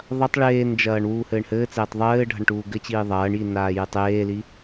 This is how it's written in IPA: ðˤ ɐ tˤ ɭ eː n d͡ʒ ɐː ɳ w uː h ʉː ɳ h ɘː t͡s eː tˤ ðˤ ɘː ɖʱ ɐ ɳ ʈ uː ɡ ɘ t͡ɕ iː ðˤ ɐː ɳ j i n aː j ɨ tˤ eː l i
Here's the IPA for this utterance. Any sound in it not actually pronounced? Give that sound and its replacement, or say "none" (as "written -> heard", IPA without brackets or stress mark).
ʉː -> ɘː